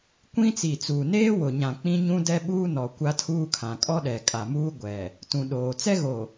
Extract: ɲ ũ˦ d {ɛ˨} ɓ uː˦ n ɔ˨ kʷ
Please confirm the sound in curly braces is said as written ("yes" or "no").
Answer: no